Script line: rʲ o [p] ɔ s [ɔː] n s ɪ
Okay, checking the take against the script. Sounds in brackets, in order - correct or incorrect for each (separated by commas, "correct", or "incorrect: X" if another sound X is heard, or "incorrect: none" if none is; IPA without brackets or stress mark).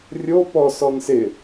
correct, incorrect: ɔ